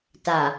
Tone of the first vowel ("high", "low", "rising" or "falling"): low